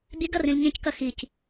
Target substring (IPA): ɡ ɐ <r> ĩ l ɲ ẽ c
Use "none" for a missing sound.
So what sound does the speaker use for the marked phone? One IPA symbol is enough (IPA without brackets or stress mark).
r